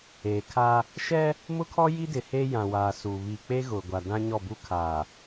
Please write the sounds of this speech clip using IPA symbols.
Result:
eː˨ kʰ a˦ | ʃ ɛ˦ | m ʊ˦ kʰ ɔ˦ j i˦ d ɪ˨ h eː˦ j ã˨ w aː˨ s u˨ β i˨ k͡p e˦ ɣ ʊ˨ ɡʷ a˨ d ã˦ ɲ ɔ˦˨ b u˦ kʰ aː˨

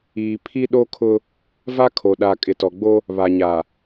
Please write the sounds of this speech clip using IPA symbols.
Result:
iː˨ pʰ i˦ ɗ o˦ kʰ ʊ˦ | v a˦ kʰ o˨ ɗ a˨ kʼ ɪ˨ t ɔ˨ ɡ͡b o˦ | β a˨ ɲ a˨

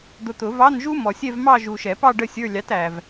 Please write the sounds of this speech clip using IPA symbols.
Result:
d̪ ʊ˨ t̪ ʊ˨˩˦ v ɑ˧˥˧ n ʒ u˥ m ɔ˨ sʲ ɛ˥˧ v m ɑ˥˧ ʒ u˨ ʃ ɛ˨˩˦ p ɑ˥˧ ɖ ə˥˧ sʲ ə˞˧˥˧ lʲ ɑ˨˥ t æ˨ v

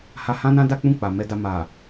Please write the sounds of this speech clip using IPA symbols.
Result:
h a˧ h ã˦ n ã˦ d a˦ k͡p ũ˦˨ k͡p a˨ m ɛ˧ d a˧ m a˨

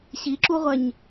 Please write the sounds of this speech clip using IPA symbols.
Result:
ɕ i ǁ u ʁʷ ɛ ɲ

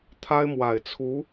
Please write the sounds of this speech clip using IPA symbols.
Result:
t̪ʰ a˥ ɪ̯ m w a˨˩ ɪ̯ t͡sʰ u˧˥

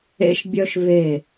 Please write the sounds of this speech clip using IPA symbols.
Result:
ḛ˦ ʃ bʲ œ˦ ʃ v e˦˨

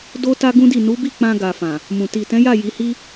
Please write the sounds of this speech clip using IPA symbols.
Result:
d o˦ t a˦ ɡ ũ˦ d i˦˨ n u˨˦ b i˦˨ k͡p ã˧ ɡ a˨ f ã˨ | m ũ˨ t i˨ t ɛ̃˨˦ j a˦˨ j i˨˦ h i˦

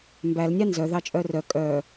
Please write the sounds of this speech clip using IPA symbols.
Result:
m b æ l nʲ ɑ n z œ ð ɑ t͡ʃʼ œ r œ kʼ œ

